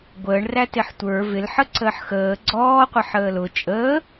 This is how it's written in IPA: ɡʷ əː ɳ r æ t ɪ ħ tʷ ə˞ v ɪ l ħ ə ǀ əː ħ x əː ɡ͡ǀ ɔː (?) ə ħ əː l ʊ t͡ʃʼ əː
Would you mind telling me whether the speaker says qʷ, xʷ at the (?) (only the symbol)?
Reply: qʷ